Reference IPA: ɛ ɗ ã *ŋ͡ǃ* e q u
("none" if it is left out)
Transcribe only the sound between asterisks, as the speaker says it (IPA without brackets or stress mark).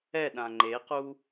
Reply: ŋ͡ǃ